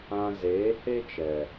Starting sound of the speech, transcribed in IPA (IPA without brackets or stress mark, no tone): ã